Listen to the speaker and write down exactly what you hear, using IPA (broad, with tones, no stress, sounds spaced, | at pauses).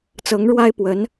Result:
t͡s ɤ˧˥ ŋ ɻ w a˥ ɪ̯ p w ə˧˥ n